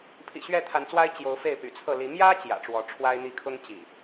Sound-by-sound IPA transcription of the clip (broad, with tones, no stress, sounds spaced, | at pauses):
pʰ ḭ˨˩ ɕ ɥ ɛ˥˨ t̪ʰ a˨˦ n t͡s w a˦ ɪ̯ t͡ɕ j o˨˦ ʊ̯ f e˥˨ ɪ̯ p y̰˨˩ t͡sʰ ɤ˥˨ l i˨˦ m j ä˦ t͡ɕ j ä̰˨˩ ʈ͡ʂ w ɔ˨˦ ʈ͡ʂʰ w a˦ ɪ̯ n̪ i˥˨ kʰ ʊ˦ ŋ t͡ɕ ḭ˨˩